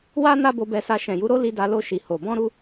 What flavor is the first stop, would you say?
plain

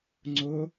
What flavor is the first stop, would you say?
click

